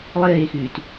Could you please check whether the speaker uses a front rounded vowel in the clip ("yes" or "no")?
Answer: yes